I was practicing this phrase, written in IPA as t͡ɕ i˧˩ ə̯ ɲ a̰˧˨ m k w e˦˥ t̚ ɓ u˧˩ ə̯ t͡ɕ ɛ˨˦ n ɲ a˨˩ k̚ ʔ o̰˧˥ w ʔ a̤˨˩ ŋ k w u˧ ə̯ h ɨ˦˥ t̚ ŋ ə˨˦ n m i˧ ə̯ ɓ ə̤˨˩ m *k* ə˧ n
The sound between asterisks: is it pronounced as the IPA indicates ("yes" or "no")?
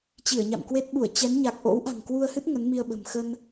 no